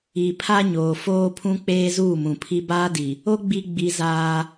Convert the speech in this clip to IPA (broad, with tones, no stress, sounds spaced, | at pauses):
i˨ pʰ a˦ ɲ oː˨ f oː˦ pʰ ũ˦ k͡p eː˦ z uː˦˨ m ũ˨ pʰ i˦ b aː˦ d i˨ | o˦ ɡ͡b i˦ ɡ͡b i˦ z aː˦